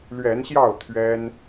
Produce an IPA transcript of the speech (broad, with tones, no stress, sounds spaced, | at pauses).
l ɥ ɛ˨˦ n ɕ j ɑ˥˨ ʊ̯ t̪ʰ ɥ ɛ˦ n